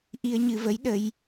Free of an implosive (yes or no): no